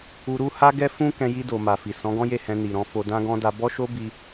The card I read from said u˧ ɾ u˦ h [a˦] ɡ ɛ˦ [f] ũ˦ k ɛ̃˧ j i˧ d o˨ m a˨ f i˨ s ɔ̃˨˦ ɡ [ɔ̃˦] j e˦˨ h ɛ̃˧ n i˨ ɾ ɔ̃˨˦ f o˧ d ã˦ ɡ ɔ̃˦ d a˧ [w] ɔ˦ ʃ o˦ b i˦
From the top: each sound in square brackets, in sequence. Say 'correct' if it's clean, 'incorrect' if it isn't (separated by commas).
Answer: correct, correct, correct, incorrect